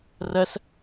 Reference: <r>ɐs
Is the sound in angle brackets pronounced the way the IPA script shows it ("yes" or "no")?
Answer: yes